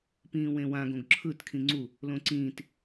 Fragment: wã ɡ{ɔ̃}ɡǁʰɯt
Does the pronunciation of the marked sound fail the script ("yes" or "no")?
yes